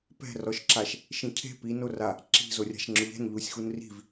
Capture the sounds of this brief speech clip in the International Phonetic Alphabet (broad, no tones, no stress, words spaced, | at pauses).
pɛ̤rɔʃǁaʃ | ʃĩcʰe̤ pinora | ǁi̤zo rʲa̤ʃŋ͡ǁʊʎɛ̤n ʎusʲxunri̤v